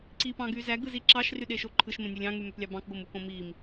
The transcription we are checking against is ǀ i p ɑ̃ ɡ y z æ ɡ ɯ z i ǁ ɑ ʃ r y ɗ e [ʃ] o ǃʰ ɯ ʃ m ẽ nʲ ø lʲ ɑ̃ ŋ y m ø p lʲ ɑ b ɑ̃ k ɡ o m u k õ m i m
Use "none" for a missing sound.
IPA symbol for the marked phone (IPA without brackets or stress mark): ʃ